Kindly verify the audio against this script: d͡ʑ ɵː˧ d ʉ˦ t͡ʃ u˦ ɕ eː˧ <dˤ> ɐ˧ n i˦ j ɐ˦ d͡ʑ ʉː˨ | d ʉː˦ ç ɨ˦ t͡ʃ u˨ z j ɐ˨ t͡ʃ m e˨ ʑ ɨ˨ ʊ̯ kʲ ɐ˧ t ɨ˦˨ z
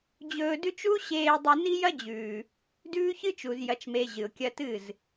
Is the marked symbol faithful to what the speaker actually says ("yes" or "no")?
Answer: yes